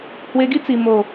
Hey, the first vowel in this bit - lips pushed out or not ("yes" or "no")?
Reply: no